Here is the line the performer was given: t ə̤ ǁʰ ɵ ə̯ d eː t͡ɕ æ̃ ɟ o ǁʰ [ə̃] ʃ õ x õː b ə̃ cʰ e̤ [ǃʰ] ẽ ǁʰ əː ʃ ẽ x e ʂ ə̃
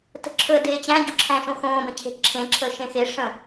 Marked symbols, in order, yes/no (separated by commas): no, no